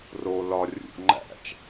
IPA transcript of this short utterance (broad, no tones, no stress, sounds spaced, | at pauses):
r o l ɒ rʲ ṵ ʔ ŋ͡ǃ æ̰ t͡ʃ